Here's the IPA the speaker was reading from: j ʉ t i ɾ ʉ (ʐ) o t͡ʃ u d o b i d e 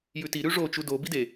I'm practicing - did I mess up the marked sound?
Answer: no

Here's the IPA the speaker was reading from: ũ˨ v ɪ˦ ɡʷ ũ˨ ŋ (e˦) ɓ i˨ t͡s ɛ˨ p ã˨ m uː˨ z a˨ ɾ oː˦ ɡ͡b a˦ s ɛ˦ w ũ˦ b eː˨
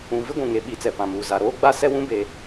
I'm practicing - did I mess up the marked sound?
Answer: yes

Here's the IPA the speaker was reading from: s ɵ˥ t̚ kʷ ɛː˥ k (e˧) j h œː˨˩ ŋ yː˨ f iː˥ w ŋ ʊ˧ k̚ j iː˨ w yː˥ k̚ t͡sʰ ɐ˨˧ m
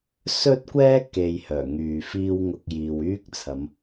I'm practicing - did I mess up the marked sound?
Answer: yes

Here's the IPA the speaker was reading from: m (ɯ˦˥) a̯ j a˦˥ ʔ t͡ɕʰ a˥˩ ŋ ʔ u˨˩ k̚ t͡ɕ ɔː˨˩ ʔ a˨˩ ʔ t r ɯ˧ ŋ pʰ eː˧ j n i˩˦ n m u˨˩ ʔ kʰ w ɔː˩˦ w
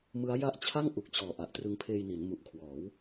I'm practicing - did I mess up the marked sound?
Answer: no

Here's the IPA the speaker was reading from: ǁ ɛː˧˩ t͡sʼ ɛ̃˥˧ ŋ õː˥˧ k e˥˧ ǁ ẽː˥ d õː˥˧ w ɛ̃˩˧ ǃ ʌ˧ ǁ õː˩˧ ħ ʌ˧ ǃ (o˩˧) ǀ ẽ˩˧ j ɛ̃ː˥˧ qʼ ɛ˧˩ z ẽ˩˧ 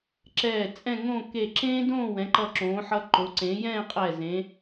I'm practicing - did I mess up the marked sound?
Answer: no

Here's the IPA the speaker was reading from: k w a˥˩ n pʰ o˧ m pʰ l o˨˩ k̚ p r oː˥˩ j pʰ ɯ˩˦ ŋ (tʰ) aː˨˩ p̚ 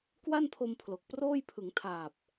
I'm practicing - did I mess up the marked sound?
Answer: no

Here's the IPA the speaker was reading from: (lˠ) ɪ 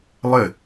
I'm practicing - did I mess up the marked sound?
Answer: no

